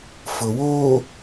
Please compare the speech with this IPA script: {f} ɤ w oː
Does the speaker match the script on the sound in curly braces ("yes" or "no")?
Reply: yes